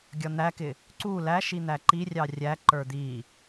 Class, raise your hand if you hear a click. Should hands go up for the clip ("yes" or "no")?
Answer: yes